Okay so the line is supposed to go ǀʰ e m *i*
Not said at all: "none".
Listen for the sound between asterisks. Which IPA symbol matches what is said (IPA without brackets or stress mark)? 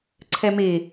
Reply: i